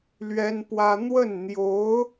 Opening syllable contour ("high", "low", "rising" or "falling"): high